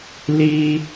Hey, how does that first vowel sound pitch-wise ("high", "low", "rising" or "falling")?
high